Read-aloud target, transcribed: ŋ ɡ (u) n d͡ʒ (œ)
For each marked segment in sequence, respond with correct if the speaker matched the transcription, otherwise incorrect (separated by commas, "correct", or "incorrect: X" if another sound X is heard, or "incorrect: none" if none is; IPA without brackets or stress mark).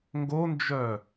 incorrect: o, correct